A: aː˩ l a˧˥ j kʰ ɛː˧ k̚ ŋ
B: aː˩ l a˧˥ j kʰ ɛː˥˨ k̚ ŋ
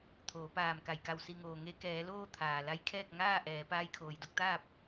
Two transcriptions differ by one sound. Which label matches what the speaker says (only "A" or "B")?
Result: B